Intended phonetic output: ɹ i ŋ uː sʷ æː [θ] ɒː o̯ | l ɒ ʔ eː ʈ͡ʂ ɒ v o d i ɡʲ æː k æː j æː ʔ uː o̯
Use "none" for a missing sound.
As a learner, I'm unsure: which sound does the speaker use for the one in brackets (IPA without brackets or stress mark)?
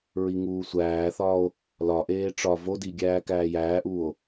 θ